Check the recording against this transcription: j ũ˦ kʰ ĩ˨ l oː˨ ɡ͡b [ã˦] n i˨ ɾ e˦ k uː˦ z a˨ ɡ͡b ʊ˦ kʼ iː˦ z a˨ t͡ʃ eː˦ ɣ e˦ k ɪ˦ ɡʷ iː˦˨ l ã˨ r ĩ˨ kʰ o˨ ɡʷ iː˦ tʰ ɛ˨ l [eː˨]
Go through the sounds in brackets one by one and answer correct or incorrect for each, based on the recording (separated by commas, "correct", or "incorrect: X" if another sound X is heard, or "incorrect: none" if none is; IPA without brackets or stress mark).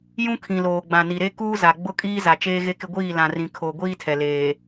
incorrect: ã˨, correct